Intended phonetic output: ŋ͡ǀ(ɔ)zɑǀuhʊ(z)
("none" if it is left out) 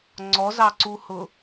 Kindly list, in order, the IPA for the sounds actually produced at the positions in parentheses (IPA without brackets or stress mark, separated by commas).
ɔ, none